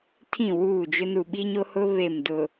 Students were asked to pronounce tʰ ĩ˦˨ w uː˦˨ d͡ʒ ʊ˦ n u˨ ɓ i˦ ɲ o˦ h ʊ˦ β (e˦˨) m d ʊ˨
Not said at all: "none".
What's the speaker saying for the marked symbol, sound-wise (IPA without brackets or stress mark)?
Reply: e˦˨